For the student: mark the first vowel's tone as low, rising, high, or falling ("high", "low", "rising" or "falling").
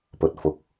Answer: low